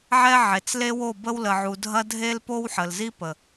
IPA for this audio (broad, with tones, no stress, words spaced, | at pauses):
ʕɛ˦ʕe˨t͡s le˦wo˦˨bə˦w lə˨ʕu˨dʱɐ˦ dʱe˦lpo˦wħə˨lzi˦ pə˨